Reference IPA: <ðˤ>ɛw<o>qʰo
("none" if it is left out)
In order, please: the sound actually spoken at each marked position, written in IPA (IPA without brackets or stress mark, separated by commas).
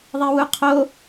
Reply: ðˤ, u